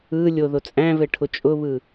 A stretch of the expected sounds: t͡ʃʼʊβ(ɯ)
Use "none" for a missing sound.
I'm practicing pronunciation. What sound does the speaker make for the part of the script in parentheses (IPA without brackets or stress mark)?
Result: ɯ